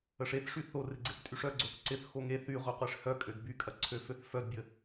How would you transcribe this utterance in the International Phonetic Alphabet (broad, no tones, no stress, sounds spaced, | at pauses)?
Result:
ə ʂ e θ ʂ y θ o r ɪ ɡ͡ǀ ɪ θ tʼ y ʂ œ ɡ͡ǀ o θ ǀ ɪ θ x o ŋ e θ y ʁʷ œ qʷ e ʂ h œ kʼ ø d b y kʼ ɐ ǀʰ ø f ø θ f œ d bʲ ə